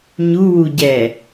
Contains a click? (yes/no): no